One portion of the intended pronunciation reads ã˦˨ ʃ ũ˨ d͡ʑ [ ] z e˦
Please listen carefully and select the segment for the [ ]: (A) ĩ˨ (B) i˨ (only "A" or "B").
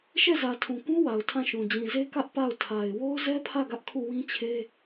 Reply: A